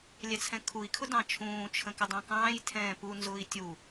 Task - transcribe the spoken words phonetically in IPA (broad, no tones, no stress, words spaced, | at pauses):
lʲɛt͡sʰɛ̃kʰui̯ kʰʊdɑ̃t͡ʃʰũː t͡ʃʰə̃kɪdˤɑ̃kɑ̃ːj tʰɛ̃ːpu nzʊːi̯tʲu